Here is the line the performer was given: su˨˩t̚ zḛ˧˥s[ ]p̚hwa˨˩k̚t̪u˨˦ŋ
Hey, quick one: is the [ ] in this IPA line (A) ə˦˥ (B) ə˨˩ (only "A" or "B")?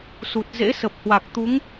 B